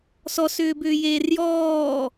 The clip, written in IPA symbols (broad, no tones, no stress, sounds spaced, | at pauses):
s ɔ s ʏː b ʏː j eː r j ɔː